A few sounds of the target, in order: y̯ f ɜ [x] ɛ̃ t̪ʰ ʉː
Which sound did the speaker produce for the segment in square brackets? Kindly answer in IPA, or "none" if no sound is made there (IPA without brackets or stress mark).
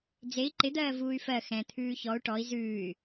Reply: x